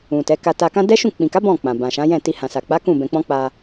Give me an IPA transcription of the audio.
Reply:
ũ˨ t ɛ˨˦ k a˧ t a˧ k ã˦ d ɛ˦ ʃ ũ˦˨ k͡p ĩ˨ k a˨˦ b ɔ̃˦˨ k͡p ã˨ b ã˨ ʃ ã˨˦ j ɛ̃˦˨ t i˧ h ã˨ s a˨ k͡p a˨˦ k ũ˦˨ b ɛ̃˧ k͡p ɔ̃˦ k͡p a˧

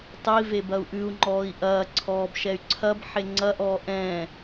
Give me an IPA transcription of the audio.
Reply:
tˤ i v e b ɐ u̯ ʔ ʉ u̯ ŋ͡ǃ ɔː i̯ ʔ ɐː ǀʰ ɔː b ʃ ɛ y̯ ǀʰ ɐ b ħ e ŋ͡ǀ ɐ ʔ ɔː ʔ ɛ̃ː

